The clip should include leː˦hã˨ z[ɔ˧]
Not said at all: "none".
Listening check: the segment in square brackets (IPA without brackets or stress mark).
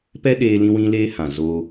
o˧